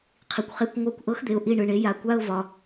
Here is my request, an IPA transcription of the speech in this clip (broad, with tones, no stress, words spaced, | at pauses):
qʰi˨kʷχe˧˥˧kʷ ŋʷa˦˨kʷʔɤ˧˥xd̪e˨ʊ̯ ʔi˦˨ɳɯ˨ɳe˩˥ ja˩˥kʷa˧˥˧ʊ̯vɒ˨